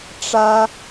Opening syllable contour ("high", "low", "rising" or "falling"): high